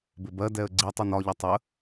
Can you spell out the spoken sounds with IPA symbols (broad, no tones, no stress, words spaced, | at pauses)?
bɪbɜdɛə̯ ɡ͡ǀi tˤunɒʎʌ tˤə